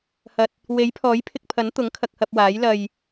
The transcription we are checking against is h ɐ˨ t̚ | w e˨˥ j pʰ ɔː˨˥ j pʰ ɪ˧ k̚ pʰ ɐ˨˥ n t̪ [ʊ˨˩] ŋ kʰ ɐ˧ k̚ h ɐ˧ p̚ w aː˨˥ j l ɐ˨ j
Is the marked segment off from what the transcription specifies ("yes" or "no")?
yes